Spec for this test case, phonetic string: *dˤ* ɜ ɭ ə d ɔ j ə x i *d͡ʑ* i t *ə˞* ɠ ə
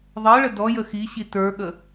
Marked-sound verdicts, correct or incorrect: incorrect: ðˤ, incorrect: ɕ, correct

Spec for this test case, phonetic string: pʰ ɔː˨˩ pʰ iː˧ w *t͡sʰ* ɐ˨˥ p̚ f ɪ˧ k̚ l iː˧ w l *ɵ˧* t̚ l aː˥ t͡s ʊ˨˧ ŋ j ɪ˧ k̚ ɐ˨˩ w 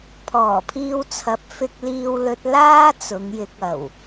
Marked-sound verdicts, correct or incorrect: correct, correct

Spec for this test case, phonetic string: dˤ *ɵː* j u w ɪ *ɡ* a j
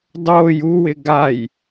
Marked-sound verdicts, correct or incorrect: incorrect: oː, correct

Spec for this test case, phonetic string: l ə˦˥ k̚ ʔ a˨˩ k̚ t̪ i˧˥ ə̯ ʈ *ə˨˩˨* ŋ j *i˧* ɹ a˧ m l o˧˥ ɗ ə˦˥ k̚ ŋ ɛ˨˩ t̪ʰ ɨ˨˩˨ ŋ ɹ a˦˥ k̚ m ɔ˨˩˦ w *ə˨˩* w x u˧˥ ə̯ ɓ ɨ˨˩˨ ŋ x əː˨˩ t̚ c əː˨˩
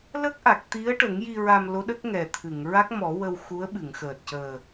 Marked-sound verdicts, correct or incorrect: incorrect: ə˨˩˦, correct, incorrect: ə˧

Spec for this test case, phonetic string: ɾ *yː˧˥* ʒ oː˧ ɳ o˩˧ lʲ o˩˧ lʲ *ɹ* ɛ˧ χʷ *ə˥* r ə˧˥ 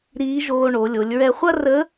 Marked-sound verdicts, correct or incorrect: incorrect: iː˧˥, correct, incorrect: ɐ˥

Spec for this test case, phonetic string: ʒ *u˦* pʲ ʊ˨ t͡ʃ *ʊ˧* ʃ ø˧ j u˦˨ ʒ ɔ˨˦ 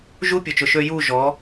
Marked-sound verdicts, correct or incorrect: correct, incorrect: ʊ˨

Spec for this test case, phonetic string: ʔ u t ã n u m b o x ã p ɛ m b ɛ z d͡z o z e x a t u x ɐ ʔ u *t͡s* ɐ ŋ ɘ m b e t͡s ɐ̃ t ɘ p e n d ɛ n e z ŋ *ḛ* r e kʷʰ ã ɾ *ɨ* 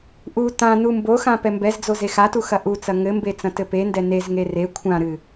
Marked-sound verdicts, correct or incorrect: correct, incorrect: e, correct

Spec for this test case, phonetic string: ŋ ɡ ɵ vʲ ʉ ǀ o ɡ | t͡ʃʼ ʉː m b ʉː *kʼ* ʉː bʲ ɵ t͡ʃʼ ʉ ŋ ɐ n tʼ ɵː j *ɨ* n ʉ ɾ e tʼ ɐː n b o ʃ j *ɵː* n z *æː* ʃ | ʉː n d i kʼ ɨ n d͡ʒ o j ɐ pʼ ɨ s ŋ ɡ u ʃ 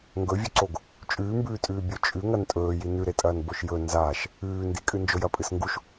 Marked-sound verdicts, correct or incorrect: incorrect: tʼ, incorrect: i, incorrect: ɵ, incorrect: aː

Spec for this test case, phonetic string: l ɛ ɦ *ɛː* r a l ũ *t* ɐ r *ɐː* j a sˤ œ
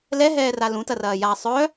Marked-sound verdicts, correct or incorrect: correct, correct, correct

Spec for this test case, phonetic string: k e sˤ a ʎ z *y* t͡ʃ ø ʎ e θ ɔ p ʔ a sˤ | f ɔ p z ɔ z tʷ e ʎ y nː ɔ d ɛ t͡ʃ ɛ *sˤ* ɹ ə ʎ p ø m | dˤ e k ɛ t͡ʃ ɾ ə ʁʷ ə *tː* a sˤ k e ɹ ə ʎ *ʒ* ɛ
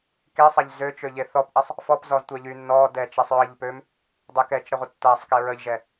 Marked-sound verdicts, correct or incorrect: incorrect: ø, correct, correct, correct

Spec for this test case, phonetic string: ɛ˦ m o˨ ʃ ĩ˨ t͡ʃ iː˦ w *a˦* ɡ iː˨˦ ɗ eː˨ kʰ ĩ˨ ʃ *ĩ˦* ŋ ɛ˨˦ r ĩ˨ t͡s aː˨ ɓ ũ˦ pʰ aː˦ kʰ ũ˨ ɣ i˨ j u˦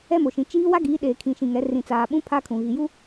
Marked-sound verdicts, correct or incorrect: correct, incorrect: ĩ˨

